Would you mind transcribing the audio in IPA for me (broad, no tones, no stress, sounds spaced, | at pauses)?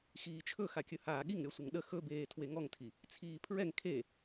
x iː t͡ʃʰ ɵ x a kʲ ɵ h aː ɠ i ŋ ɾʲ ɔ sʷ ə ŋ ɗ ə x ɵ b eː tʰ w e ŋ ɔ ŋ tʰ i | t͡sʰ iː pʰ ɹ ɛ ŋ kʰ e